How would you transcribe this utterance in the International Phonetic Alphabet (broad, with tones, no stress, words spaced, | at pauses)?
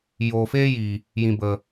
joː˨feː˦ jiː˨ | jĩ˨bə˨